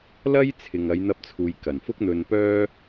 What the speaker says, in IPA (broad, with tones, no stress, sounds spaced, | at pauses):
l ɐ˥ j t͡sʰ ɪ˨ ŋ ɐ˨˧ j n̪ ɐ˧ p̚ t͡sʰ uː˨ j k ɐ˨˩ n f ʊ˥ k̚ n̪ ɵ˧ n p œː˥